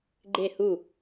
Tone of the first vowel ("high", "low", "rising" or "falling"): falling